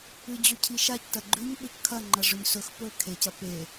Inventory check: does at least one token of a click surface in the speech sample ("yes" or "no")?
yes